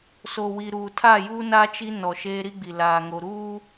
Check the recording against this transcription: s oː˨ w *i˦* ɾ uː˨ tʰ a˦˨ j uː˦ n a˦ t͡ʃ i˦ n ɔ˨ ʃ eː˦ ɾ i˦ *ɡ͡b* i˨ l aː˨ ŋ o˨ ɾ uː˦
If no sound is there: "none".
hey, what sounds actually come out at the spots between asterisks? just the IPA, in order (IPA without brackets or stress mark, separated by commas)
i˨, ɡ͡b